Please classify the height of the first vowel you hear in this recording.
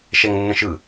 mid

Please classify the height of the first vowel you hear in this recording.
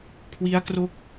high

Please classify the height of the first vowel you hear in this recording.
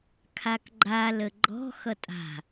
low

